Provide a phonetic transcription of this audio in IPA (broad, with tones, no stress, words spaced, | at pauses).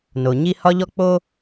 no˩ ɲi˧ hɒ˧ʎɔ˧k͡po˧